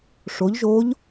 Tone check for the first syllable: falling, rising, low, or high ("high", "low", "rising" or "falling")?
rising